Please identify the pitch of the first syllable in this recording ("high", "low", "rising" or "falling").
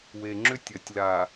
low